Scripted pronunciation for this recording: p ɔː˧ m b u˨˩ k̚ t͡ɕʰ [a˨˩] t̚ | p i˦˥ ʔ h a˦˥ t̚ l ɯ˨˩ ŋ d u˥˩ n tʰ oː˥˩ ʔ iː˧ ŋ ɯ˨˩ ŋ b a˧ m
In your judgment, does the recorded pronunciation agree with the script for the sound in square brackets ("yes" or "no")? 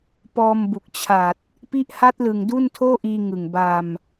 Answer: yes